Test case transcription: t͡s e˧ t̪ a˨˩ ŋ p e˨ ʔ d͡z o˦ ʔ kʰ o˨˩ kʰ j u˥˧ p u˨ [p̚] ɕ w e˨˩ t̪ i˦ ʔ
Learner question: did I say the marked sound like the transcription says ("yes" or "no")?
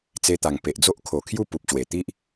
yes